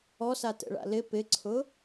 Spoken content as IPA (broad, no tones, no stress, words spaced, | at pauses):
ɔsatɛ̰ɭa̰ lɪ pɪǀʰʊ